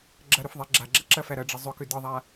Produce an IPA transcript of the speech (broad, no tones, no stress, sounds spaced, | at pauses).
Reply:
ɡ͡ǁ ɐ ɾ ʏ f ðˤ i ɡ͡ǁ a ɡ͡ǁ ɐ ǁ ɐ f æ ɾ ɐ ɖ͡ʐ ə zˤ ʏ k ʏ d ɯ ðˤ a